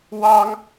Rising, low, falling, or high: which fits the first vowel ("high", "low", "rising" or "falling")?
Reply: high